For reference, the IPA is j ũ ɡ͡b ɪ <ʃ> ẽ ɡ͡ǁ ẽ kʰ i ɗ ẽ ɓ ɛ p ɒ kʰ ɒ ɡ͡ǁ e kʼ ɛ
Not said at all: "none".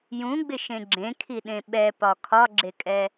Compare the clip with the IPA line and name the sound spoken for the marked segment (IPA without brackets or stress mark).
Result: ʃ